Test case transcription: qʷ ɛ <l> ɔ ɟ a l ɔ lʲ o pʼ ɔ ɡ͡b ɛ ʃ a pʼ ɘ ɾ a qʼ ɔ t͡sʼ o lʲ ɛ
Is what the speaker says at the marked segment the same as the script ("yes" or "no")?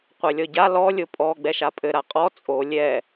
no